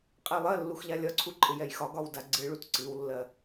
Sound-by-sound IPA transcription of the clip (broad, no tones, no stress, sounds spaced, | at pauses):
qʼ ɛ lˠ ɜ lː u x ʎ a lʲ ɒ ǀʰ u ǃʼ ɪ j ɛ j x ɒ ɡ ɒ w d a ɡ͡ǀ ɨ ɭ u t ǀ ɨ w lː ɜ